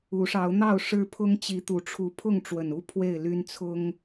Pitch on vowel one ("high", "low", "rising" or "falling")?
rising